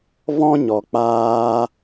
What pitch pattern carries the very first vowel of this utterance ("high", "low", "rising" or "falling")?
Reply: high